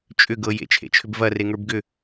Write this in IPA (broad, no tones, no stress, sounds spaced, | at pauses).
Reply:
t͡ʃʼ ʏ ɡ ɤ j ḛ t͡ʃʰ ḛ t͡ʃʰ ʏ b v ɐ r e ŋ ə˞ b ɡ ʏ